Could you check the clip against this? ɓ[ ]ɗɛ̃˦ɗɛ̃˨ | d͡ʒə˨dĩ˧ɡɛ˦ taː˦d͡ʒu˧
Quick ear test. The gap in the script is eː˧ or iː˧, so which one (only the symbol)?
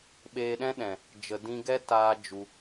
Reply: eː˧